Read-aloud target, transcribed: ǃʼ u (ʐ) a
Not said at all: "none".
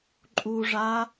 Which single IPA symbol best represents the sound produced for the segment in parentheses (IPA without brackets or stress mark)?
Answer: ʐ